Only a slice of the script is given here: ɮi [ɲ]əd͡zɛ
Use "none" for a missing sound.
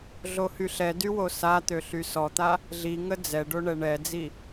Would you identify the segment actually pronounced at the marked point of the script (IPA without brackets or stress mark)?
ŋ